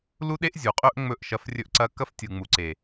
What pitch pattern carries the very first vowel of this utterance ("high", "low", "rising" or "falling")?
high